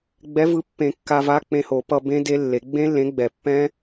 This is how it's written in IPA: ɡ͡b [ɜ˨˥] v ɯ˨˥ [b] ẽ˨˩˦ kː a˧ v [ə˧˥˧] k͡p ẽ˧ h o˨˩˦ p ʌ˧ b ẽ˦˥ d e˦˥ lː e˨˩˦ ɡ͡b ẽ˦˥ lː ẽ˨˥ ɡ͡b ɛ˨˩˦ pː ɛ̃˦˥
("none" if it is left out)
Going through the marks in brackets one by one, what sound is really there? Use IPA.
ɛ˨˥, pː, a˧˥˧

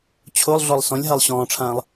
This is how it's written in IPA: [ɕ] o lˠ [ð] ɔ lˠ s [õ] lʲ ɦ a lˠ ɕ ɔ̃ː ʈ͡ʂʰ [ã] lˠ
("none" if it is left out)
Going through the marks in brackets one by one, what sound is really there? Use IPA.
t͡ɕʰ, ɮ, ɔ̃, ãː

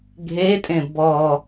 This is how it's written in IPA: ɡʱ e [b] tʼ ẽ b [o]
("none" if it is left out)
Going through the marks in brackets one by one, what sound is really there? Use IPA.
none, ɔ

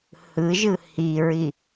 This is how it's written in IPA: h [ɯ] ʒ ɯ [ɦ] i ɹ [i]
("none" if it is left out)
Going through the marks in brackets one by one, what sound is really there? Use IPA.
ɯ, h, i

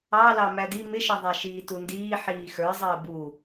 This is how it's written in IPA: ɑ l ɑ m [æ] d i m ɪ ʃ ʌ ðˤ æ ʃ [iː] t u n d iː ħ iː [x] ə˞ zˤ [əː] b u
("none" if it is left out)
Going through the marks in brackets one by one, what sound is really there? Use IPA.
æ, iː, x, əː

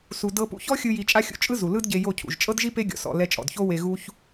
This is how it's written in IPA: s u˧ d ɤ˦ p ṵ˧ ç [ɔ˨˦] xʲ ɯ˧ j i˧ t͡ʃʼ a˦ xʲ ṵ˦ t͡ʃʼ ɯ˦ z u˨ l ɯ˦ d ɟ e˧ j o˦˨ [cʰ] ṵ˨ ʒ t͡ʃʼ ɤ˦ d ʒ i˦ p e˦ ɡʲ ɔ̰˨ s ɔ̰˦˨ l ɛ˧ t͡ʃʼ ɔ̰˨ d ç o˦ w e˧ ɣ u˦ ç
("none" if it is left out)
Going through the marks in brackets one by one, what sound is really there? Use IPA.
ɔ˦, cʰ

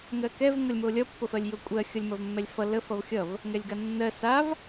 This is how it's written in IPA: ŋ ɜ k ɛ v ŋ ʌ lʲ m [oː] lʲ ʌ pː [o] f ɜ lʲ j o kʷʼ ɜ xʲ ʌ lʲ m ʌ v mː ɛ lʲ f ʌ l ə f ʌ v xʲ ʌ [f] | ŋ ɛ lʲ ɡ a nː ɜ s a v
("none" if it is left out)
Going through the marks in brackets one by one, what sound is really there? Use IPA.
o, o, v

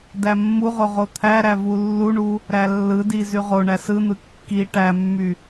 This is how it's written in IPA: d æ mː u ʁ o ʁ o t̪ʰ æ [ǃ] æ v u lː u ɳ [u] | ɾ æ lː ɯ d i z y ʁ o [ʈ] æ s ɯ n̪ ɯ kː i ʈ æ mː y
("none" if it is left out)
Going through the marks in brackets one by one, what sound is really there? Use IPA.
ɾ, u, ɳ

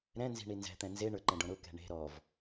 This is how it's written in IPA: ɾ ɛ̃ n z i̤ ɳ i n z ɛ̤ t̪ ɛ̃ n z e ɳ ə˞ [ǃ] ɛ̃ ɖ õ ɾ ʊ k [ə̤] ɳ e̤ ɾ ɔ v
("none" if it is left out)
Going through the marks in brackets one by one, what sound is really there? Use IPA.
ǃ, ɛ̤

